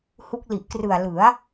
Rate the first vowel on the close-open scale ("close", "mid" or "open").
close